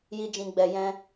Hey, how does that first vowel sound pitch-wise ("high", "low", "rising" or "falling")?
high